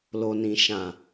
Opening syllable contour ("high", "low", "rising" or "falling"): low